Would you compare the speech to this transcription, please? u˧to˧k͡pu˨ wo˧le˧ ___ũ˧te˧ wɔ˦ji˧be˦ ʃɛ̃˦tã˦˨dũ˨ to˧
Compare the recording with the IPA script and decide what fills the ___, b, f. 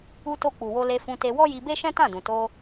f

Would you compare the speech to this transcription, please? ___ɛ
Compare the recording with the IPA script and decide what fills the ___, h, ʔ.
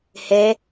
h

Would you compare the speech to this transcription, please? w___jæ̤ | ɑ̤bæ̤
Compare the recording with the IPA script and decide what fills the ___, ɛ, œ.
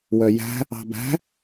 œ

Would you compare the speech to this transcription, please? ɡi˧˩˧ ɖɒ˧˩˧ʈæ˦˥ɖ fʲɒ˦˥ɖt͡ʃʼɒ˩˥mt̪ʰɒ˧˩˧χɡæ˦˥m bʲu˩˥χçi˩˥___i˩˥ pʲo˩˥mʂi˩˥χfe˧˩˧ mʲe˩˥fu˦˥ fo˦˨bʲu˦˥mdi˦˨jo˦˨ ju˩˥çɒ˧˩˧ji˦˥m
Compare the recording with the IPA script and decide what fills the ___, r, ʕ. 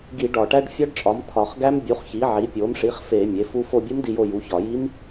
ʕ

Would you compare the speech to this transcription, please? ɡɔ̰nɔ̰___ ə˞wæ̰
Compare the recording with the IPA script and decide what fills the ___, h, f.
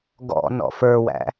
f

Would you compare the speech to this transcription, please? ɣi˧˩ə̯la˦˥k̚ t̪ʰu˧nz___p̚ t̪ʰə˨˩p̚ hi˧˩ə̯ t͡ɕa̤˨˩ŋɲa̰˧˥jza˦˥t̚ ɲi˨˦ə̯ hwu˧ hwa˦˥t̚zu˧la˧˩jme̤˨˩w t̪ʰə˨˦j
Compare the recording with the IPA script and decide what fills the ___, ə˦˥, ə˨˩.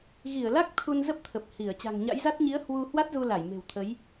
ə˦˥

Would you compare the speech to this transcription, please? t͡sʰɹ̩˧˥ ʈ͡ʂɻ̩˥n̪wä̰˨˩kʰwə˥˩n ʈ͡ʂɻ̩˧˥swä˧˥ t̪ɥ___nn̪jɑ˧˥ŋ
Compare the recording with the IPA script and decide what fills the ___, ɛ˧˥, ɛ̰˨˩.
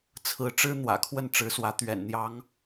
ɛ̰˨˩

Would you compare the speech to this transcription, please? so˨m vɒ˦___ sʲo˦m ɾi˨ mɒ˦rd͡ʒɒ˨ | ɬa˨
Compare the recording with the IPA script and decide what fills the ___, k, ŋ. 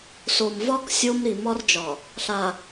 k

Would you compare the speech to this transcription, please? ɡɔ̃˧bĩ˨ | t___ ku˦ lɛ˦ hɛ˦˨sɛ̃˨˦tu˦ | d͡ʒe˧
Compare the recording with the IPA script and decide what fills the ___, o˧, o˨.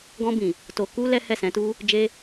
o˧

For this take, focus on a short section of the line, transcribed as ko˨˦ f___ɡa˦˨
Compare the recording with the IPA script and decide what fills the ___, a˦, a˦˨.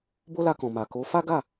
a˦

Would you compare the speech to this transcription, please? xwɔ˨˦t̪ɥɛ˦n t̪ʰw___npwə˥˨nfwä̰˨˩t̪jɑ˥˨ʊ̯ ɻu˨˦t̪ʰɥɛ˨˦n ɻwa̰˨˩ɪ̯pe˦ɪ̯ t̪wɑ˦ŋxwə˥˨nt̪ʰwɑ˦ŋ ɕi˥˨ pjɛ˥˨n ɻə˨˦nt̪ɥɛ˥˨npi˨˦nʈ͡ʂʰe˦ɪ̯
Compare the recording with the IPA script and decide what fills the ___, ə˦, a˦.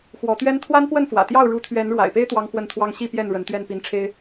a˦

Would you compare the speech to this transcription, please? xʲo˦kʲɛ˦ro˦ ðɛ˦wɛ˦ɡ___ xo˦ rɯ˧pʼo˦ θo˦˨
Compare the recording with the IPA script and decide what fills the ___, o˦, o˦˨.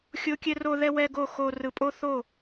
o˦˨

